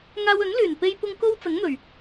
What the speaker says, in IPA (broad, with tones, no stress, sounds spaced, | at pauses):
ŋ aː˧ w ɵ˨˥ n l yː˨˩ n p e˧ j p ʊ˧ ŋ k o˥ w t͡s ɐ˨˥ ŋ n̪ ɵ˨˩ ɥ